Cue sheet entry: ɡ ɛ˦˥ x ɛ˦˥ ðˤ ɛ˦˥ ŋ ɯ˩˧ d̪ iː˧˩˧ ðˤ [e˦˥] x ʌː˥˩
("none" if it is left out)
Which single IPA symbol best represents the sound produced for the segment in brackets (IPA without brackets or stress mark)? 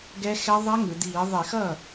e˧˩˧